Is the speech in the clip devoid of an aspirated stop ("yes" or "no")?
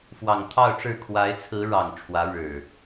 no